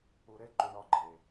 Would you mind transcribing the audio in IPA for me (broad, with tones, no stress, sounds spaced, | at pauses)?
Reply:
u˨ ɾ e˧ ǃ u˨ ɳ ɒ˨˦ ɡ͡ǃ e˨